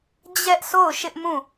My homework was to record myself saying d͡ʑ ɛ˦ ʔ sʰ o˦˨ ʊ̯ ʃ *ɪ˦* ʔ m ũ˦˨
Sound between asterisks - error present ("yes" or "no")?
no